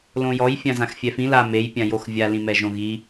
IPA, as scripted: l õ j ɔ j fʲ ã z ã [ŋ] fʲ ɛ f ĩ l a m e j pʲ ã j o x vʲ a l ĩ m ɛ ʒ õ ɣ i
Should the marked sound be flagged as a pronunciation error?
yes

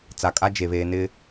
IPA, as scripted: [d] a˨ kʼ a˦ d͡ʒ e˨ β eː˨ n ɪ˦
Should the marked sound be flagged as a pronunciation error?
yes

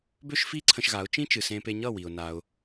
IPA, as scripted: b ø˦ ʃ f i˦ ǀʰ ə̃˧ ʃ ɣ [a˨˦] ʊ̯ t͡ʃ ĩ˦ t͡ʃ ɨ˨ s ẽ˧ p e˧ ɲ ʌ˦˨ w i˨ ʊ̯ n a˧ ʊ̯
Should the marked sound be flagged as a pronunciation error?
no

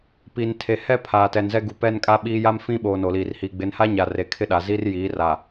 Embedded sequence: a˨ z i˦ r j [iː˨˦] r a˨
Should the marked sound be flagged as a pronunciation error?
no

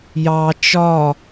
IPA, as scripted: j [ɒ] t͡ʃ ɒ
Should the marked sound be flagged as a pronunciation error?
yes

